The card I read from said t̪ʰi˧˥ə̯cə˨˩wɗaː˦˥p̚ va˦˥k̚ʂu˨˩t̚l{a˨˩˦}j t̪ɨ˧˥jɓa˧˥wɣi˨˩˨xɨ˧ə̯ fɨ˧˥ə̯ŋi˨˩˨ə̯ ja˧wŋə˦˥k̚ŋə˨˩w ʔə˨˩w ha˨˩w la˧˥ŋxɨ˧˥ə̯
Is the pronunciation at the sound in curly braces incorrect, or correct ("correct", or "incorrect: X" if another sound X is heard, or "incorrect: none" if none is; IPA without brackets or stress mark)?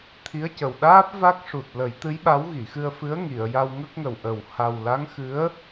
incorrect: ə˨˩˦